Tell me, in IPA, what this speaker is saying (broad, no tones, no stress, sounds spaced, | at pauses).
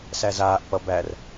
s æ z aː ʔ p ʌ b æ r